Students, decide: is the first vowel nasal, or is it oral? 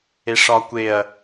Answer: oral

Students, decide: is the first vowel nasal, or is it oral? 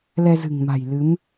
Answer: oral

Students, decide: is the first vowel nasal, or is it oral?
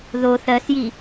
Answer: oral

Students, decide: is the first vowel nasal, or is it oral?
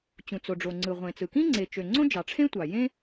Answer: nasal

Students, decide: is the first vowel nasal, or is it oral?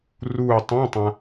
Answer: oral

